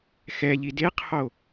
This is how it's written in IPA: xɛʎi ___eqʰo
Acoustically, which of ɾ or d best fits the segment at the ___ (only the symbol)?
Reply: d